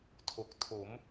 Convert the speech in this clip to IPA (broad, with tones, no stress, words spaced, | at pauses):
tʰo˨˩k̚ tʰo˩˦m